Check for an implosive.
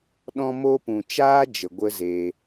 present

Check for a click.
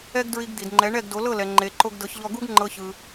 present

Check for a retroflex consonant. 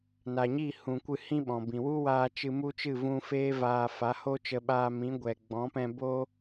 absent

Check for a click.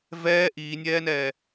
absent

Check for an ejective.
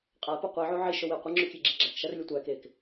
present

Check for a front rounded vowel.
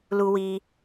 absent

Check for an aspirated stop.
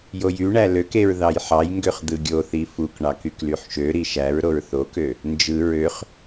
absent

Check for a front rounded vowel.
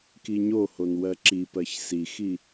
absent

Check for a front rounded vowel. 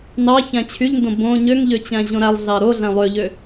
present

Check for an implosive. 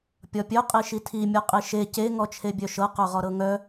absent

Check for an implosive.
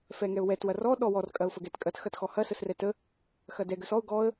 present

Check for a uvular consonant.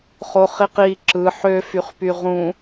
present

